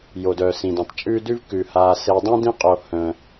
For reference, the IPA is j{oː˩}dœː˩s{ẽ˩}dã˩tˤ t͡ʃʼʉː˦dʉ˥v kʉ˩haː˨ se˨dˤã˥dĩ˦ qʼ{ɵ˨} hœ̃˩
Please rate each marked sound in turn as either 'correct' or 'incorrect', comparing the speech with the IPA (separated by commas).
incorrect, incorrect, incorrect